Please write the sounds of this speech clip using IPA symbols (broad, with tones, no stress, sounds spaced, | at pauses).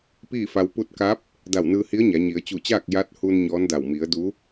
p iː˥˨ f a˧ w p u˧ t̚ k a˧˥ p̚ | d a˧˩ w n ɯː˧ h i˧˥ ə̯ ɲ a˩˧ ɲ i˩˧ ə̯ t͡ɕ u˧˩ t͡ɕ aː˥˨ k̚ j a˧˥ t̚ h u˧ n ɲ ɔː˧˥ n d a˧˩ w m i˩˧ ə̯ d u˧˥